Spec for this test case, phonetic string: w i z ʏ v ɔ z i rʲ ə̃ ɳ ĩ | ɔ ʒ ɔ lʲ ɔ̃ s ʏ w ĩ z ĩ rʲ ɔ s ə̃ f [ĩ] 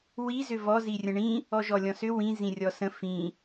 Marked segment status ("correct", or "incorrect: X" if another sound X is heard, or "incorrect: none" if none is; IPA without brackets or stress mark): correct